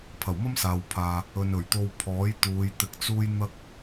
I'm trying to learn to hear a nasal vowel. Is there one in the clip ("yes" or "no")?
no